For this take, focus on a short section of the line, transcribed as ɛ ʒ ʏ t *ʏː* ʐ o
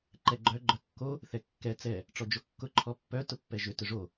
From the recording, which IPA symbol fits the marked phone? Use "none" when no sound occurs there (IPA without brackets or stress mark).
ʏ